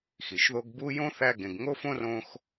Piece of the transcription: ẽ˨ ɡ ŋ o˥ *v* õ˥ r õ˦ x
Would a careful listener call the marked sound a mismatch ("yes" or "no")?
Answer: yes